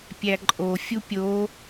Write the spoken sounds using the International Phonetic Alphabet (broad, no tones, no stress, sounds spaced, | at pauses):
pʲ æ ǃʼ o fʲ u pʲ o